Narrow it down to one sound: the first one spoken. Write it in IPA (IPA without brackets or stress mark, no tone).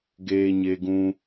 ɡ